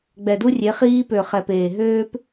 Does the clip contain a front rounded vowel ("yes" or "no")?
yes